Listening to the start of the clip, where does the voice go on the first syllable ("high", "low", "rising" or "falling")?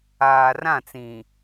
low